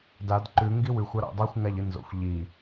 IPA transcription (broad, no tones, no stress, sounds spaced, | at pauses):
d a d ǃ ʉ ŋ ɡ i w ʉ xʷ a ɾ a̰ dˤ a xʷ ŋ a ʎ ɨ n z o̰ xʷ ʎ i